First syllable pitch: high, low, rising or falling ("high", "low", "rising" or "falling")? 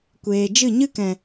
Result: low